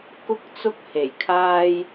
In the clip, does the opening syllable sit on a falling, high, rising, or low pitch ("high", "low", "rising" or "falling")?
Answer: high